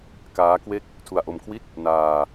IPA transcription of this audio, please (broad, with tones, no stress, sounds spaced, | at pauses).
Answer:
k aː˦˥ k w e˦˥ k̚ | tʰ u˧ a̯ ʔ o˧ m kʰ w i˥˩ t̚ | n aː˧